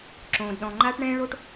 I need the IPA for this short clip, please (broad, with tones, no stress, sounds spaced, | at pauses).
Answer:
ǁ õː˥ d ɗ ɔ̃˥ ŋ͡ǃ aː˥ ʈ ɳ ɛ̃ː˥ ɭ o˥ ʈ